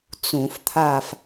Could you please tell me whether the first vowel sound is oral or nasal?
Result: nasal